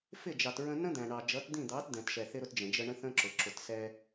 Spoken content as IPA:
fɪ˦˨d͡ʒɑ˨tɹə̃˧ nə̃˦d̪æ̃˨ɳɑ˨ d͡ʒʌ˨˦td̪ĩ˦˨d̪ɑ˨˦t d̪ɛ̃˨t ʃɛ˨θɪ˧ɾʊ˧t d͡ʒə̃˨d͡ʒə˧ ɳə̃˦θə̃˦ǁʊ˨ ǁʊ˨tsɛ˧

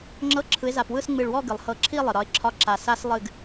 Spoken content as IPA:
ŋ͡ǁɤ˧˥˧ǁʰɯ˨˦ɪ̯za˧˩pwɯ˥˧s ŋ͡mɨ˧˩ɭwɔ˥˧ɡɨ˩lˠ hɤ˧˩ǁʰi˥˧ lˠɨ˩ɾɒ˨˦ɪ̯ǁʰɒ˧˥˧ ǁa˧˩sa˦˥s lˠɨ˥˧ɡ

